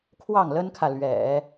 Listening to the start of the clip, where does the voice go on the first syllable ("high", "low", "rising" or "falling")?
falling